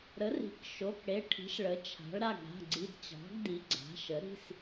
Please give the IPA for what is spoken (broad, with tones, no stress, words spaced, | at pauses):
ɾə˩˥ri̤˩˥kʃo˩˧˩k ɽe˩˧˩ʈʰi̤˩˥ʃ ɭə˩˥t͡ʃʰa̤˩˥ɭ ɾa˩˧˩ɡɽa̤˩˧˩ɡ͡ǀi˩˧˩d t͡ɕɑ̤˩˥ɡdi˩˥ ɡ͡ǀa̤˩˥ʃə˩˥ ɾi̤˩˧˩s